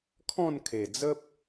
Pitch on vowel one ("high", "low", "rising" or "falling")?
falling